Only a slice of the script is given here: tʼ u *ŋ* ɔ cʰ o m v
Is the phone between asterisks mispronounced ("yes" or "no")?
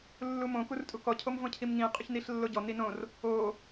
yes